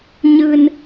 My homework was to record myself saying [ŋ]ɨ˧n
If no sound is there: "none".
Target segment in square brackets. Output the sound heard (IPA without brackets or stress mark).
ɲ